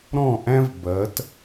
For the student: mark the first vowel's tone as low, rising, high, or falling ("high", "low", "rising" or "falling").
falling